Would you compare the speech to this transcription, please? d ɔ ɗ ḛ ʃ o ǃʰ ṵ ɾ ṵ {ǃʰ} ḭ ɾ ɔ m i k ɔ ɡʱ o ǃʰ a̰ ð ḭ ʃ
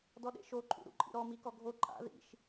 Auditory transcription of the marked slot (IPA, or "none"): ǃʼ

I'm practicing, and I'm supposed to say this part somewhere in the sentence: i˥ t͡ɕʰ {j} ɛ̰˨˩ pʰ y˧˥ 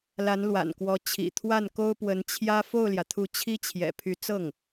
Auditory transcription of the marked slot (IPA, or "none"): j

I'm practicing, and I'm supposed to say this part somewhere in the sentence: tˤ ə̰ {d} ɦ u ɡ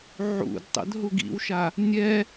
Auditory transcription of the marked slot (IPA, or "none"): d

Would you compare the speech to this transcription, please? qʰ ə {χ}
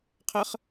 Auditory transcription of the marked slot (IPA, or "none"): χ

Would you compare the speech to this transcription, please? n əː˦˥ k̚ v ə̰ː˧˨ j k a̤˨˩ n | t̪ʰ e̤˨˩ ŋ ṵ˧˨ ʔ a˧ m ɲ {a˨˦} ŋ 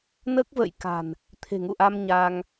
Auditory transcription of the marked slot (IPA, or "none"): a˧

